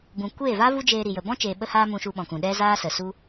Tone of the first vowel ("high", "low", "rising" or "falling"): low